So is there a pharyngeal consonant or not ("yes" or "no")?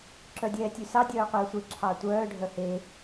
no